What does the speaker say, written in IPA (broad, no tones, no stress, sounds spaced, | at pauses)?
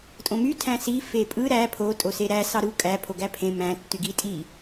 tʼ õ m y tʰ æ̃ s i f e pʼ ɯ ɾ æ pʰ o tʼ o s e ɾ æ s ɑ ɾ u kʼ æ pʰ o ɡ æ pʰ ẽ m æ̃ tː y ɡ i tʼ i